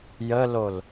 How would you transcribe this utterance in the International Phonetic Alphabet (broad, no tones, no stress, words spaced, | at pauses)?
jəlol